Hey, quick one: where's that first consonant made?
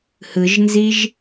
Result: throat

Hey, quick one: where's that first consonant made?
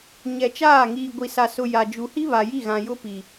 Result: palate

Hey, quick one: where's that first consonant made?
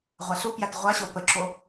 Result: uvula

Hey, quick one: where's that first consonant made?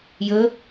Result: palate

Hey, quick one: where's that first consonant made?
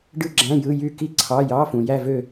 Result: retroflex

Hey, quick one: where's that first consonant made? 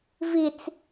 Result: lips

